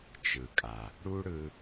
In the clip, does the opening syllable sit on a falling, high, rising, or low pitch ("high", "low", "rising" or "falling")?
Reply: low